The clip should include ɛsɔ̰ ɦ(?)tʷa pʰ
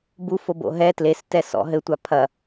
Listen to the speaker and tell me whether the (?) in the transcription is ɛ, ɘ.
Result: ɘ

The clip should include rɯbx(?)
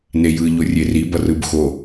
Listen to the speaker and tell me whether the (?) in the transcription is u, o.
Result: o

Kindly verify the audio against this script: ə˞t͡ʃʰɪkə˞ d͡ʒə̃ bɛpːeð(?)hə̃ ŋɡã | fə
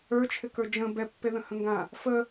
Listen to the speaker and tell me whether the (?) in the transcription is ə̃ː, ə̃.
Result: ə̃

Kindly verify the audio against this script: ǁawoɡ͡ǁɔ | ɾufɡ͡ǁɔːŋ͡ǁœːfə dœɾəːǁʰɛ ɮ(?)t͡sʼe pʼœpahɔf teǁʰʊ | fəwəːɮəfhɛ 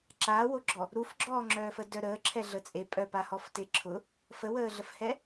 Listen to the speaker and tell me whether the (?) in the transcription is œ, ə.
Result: ə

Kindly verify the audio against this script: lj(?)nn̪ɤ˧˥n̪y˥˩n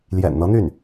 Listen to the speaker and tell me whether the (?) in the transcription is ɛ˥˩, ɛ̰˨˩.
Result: ɛ̰˨˩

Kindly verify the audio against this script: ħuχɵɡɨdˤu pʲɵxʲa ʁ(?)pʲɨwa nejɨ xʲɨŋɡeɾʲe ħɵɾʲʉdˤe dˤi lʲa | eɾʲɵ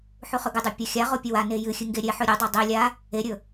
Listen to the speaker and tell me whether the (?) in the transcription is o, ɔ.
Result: o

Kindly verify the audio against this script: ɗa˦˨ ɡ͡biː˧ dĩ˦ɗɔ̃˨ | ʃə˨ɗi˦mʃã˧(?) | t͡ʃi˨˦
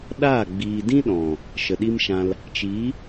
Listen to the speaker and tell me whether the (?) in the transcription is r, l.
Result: l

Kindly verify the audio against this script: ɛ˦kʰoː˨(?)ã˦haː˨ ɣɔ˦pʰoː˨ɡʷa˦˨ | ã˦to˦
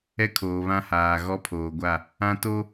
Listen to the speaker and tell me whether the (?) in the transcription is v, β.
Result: β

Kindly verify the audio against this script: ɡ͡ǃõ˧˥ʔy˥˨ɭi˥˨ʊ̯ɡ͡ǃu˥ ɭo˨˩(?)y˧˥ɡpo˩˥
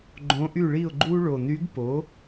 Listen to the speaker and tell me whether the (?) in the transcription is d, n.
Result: n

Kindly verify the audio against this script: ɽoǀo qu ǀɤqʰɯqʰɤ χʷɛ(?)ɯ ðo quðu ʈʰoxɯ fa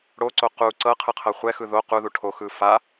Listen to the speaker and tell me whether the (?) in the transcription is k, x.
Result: x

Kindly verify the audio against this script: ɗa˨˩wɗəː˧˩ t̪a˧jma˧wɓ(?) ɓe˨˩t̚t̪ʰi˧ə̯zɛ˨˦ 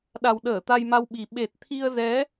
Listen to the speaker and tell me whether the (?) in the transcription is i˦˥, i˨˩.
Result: i˨˩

